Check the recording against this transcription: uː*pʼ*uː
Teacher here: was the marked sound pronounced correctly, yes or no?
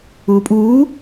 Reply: yes